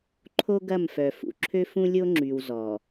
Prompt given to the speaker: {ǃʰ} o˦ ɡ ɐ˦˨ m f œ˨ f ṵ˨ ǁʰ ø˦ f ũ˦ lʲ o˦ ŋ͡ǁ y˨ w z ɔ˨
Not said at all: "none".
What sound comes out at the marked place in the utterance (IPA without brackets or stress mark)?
ǃʰ